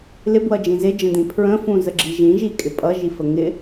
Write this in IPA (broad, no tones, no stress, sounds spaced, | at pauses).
l ɪ b w ʌ d͡ʒ ĩ z ɪ d͡ʒ ə̃ d ĩ pʰ ɹ ə̃ f ũ z ə ɡ͡ǁ i ʒ ĩ ʒ i kʼ ɪ pʼ ʌ ʒ i f ə ŋ ɪ